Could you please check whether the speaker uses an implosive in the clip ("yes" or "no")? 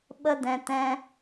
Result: yes